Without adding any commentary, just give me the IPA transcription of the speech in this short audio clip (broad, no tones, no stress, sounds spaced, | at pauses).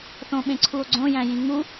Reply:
θ õ ɓ ẽ ǀʰ u o̯ ɡ͡ǀ õ j æ̃ j ĩ ŋ͡m u